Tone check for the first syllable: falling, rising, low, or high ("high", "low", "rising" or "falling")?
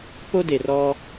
high